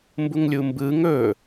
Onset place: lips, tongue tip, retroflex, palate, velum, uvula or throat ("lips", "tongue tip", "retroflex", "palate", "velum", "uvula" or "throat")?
lips